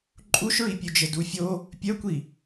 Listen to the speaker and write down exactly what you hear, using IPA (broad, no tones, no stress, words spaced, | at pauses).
ǃʼuʃɹipʲʉd͡ʒɘ dufʲo | pʲœkʷi